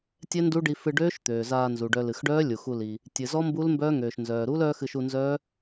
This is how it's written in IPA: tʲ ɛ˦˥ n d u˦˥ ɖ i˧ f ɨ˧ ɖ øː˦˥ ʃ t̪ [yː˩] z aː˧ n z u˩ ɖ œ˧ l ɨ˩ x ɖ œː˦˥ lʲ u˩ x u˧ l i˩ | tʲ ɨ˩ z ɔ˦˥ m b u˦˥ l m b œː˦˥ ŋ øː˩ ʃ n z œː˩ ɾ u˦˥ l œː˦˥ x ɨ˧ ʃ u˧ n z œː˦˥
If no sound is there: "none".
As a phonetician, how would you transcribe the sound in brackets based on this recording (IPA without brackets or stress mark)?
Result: øː˩